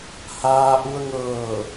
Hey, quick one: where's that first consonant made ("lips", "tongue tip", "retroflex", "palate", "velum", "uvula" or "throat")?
throat